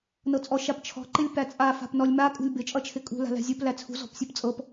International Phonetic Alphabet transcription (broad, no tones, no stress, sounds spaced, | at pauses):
n ɤ t͡sʼ ɔ ʃ a p t͡ʃʰ ɔ̤ ǃ ɪ lʲ p æ t͡sʼ a f a̤ p n ɔ lʲ m a kʼ ṳ lʲ b ɪ t͡ʃʼ ʌ t͡ʃʰ ɪ kʼ ṳ l a̤ l æ̤ zʲ u p l æ t͡sʰ ṳ z ɔ̤ p sʲ ɔ p t͡sʼ ɤ p